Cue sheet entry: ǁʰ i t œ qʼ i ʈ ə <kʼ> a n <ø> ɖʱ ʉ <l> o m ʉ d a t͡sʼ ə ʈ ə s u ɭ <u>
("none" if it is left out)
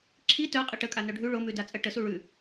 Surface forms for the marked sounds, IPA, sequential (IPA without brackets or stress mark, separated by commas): kʼ, œ, ɭ, ʉ